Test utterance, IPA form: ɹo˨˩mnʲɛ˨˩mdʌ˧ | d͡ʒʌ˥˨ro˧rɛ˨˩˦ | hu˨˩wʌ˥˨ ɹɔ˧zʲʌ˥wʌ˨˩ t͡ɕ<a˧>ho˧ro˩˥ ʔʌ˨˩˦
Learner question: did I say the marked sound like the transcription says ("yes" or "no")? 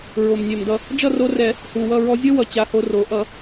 yes